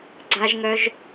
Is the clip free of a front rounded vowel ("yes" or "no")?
no